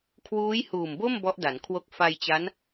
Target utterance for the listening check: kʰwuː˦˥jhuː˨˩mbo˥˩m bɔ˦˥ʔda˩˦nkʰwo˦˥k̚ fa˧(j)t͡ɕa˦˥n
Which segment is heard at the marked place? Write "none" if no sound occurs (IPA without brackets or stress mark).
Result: j